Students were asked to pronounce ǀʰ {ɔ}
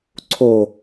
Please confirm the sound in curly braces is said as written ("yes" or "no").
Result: no